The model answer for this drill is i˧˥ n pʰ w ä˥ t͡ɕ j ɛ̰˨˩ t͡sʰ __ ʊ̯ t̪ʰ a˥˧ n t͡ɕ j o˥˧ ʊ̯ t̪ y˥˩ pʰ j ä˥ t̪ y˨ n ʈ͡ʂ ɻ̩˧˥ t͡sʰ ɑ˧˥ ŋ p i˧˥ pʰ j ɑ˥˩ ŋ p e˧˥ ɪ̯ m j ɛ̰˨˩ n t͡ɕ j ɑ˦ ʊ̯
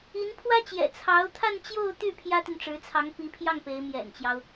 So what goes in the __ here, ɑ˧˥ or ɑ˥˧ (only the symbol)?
ɑ˧˥